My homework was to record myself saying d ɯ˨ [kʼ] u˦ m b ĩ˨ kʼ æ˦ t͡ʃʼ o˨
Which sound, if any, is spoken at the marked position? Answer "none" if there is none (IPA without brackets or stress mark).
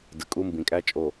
kʼ